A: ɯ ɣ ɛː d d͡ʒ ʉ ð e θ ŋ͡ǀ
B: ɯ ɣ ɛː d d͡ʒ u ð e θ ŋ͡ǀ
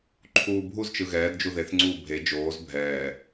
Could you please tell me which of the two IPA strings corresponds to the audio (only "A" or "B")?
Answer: B